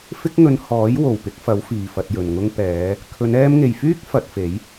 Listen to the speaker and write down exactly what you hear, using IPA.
f ɪ˥ k̚ ŋ ɵ˧ n h ɔː˨˥ j w o˨˩ w p ɪ˨˥ k̚ f ɐ˨˥ w f iː˨ f ɐ˧ t̚ j ɵ˨ n ŋ ʊ˥ ŋ p ɛː˨˧ | kʰ ɵ˨˧ n ɛː˧ m ŋ e˨ j f yː˥ k̚ f ɐ˨˥ t̚ f e˨˥ j

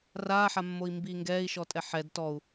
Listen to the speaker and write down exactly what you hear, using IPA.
r aː ħ a mː o i̯ m b iː ŋ ɡ ɛː i̯ ʃ ɔ tʼ ɛ ħ ɛ d t ɔ u̯

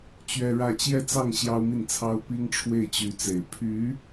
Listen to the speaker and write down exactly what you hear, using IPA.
t͡ɕ ɥ ɛ˥ ɻ ä˥˧ t͡ɕ j ɛ˥˧ t͡s ɑ˥˩ ŋ ɕ j ɑ˥ ʊ̯ m i˥˩ n t͡sʰ ɑ˥ ʊ̯ p i˥ ŋ ʈ͡ʂʰ w e˥˩ ɪ̯ t͡ɕ y˧˥ t͡s e˨˩ ɪ̯ pʰ y˧˥

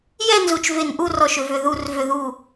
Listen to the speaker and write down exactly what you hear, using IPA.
j ɛ˥˧ n z u˧˩ t͡ʃ v e˧˩ n ʔ u˥˧ r ɔ˧˩ ʃ ʏ˧˩ v ʏ˧˩ ð u˧˩ r v ʏ˧˩ ð u˧˩

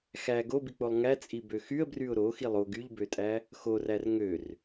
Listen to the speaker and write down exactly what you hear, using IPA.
x æ ɡ o b i k͡p o lˠ ŋ æ t͡sʼ i b ø x y ə̯ b r y ʊ̯ ɾ o x i lˠ o ɡ y ʎ b ø tʼ æ | x o r æ r ŋ ø r

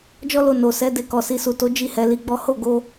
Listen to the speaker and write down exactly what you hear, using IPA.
d͡ʒ ɔ˦ l o˧ n o˨ s ɛ˨˦ d e˧ k ɔ˨ s i˨ s u˨ t o˨˦ d͡ʒ i˦˨ h ɛ˨˦ l i˧ ɡ͡b ɔ˦ h o˦˨ ɡ o˧

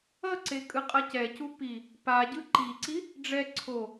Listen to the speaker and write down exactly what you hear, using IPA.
ʌ ǀ e kʼ ɯ qʼ ʌ c ɛ c u p i | p a ɟ ɯ ǃ i ǀ i | ɖ͡ʐ ɛ ǀʰ o

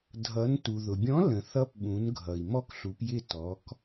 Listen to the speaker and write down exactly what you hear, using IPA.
dʱ ʌ˩˧ n t u˩ ð ʊ˩ bʲ ɔ̃˨˥ l ə̃˩ θ ʌ˨˥ p ɓ ũ˩˧ n ɡʱ ʌ˩ i̯ m ɔ˦ k ɬ u˩˧ p j ɪ˦˨ t ɔ˩˧ k

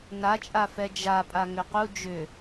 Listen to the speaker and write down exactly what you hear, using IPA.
n a t͡ʃʼ a f ɛ d͡ʒ a pʼ a ŋ ʏ q u d͡ʒ ʏ

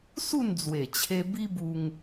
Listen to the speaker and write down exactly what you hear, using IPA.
s u˥˧ n d͡z w e˨˩ t͡ɕʰ e˧ b i˦ b u˧ ŋ

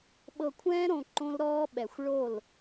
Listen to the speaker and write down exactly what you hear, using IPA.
ɓ ɤ˧ kʷʰ ɛ̃ː˦ ɾ õ˧ ǃ õ˦ l ɾ ɔː˦ ɓ ɛ˨ xʷ ɭ o˦˨ l

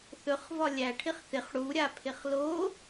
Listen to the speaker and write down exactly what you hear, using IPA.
θ ɵ χ v ɒ lʲ æ ʈʰ ɪ χ θ ɪ χ ɽ u ɾʲ a pʰ ɪ χ l o

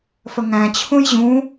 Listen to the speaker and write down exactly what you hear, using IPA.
f ə ŋ æ̃ t͡ɕʰ ũ j ʑ ũ

